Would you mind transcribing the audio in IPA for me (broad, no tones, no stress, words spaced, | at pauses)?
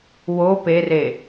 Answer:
wo pere